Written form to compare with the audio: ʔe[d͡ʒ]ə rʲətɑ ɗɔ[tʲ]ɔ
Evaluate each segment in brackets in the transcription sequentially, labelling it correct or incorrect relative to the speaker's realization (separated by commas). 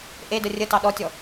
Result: incorrect, correct